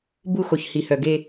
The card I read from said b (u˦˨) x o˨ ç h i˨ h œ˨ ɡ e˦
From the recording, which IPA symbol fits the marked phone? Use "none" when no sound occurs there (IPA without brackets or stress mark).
u˦˨